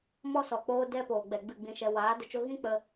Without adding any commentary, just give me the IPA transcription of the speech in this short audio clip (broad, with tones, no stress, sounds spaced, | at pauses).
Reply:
m ɔ˦ s ɔ˨ k͡p oː˦ d ɛ˦ p oː˨ ɡ͡b ɛ˨ ɡ͡b ɨ˦˨ ɡ͡b ĩ˧ ʃ ɛ˧ w aː˨˦ d ə˧ t͡ʃ o˦ ɣ ĩ˦ k͡p ə˧